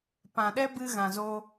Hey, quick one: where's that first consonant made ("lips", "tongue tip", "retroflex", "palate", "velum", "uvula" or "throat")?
lips